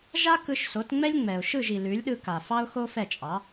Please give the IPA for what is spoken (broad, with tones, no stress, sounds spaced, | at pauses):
ʒ a˥ k ɯ˧ ʃ s o˩˥ t ŋ͡m ɛ˥ lʲ ŋ͡m ɛ˩ ʊ̯ ʃ ɯ˥˩ ʒ i˩ l ʉ˩˥ lʲ ɗ ɯ˧ k a˩ f ɑ˥ ʊ̯ x o˥ f ɛ˥˩ t͡ʃʼ ɑ˩˥